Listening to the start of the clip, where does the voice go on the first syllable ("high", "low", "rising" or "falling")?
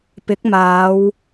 rising